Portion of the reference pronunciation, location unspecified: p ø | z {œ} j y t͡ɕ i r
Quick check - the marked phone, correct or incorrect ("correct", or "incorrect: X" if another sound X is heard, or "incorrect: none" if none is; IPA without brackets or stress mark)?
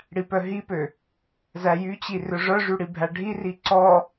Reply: incorrect: æ